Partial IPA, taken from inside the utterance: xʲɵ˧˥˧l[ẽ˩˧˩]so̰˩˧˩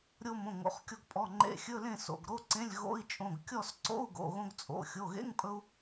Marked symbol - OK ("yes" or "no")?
no